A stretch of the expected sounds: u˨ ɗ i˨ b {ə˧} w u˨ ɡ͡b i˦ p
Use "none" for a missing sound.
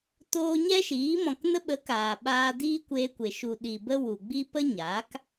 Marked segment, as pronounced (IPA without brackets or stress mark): ə˦